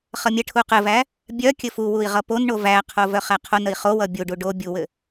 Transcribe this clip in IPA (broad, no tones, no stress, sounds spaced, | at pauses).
χ ʌ mʲ ə ʈʰ u q ɘ v æ | bʲ œ kʲ ɘ f u w u i̯ ʁ ʌ p o n ɳ o v æ qʰ o v œ χ æ qʰ o n ə i̯ χ o w ʌ bʲ u ɖ u ɖ o bʲ u w ɘ